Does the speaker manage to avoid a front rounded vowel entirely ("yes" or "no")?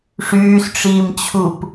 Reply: no